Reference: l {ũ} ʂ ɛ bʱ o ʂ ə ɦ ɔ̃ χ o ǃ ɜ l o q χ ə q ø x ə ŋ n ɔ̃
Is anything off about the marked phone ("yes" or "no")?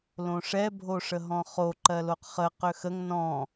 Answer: yes